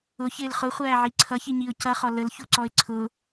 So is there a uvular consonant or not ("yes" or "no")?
yes